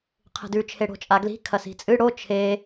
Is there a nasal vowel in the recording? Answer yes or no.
no